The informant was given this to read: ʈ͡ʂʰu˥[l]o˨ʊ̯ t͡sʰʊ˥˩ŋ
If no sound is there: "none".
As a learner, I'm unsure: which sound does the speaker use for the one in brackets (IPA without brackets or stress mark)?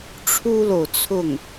l